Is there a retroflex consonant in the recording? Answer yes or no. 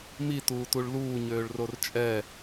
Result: yes